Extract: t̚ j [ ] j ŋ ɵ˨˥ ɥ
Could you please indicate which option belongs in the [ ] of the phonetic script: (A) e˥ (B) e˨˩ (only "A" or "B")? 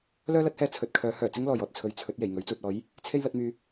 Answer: B